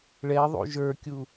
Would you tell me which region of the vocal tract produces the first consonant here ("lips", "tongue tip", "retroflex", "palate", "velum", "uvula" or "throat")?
retroflex